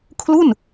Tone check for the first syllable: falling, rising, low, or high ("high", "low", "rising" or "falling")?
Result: falling